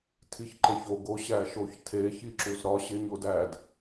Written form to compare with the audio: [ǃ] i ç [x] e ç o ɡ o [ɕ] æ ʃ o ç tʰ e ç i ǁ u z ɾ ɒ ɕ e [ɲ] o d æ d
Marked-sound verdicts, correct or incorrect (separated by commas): incorrect, incorrect, correct, correct